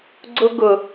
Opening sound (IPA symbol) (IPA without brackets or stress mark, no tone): ɡ͡ǀ